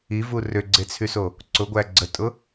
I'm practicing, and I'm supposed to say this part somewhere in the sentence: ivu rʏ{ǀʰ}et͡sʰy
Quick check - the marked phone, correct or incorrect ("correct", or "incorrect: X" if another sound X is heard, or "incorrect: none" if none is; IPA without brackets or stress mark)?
incorrect: ɡ͡ǀ